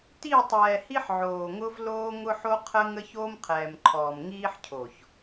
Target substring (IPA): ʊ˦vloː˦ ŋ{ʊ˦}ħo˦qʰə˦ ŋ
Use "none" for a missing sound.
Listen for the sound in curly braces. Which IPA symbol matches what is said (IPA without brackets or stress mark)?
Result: ʊ˦